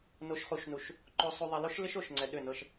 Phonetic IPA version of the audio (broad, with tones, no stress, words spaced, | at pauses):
no˨ʃχu˨ʃnu˨ʃ | ǃo˨sˤu˨ ðˤɪ˨lo˦ʃlɪ˦ʃ o˨ʃŋ͡ǀɛ˨ ɗʏ˦˨nɤ˦ʃ